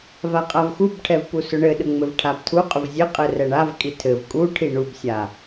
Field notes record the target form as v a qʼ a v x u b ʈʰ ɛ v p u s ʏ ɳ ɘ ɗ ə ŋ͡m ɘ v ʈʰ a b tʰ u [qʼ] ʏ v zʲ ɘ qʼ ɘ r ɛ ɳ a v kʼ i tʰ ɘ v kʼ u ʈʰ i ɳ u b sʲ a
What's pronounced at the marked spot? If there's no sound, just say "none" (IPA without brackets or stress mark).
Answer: qʼ